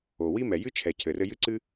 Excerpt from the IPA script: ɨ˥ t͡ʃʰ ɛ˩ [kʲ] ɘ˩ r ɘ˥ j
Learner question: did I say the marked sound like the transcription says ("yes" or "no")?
no